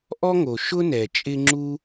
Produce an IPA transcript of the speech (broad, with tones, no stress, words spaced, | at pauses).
ʔɔ˥ŋo˩ ʃʊ˥nɛ˩t͡ʃʼɪ˦ ŋ͡ǁu˥